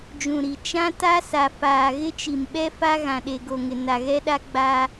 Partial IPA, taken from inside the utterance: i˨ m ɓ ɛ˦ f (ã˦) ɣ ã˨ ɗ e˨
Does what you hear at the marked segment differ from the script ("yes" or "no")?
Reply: yes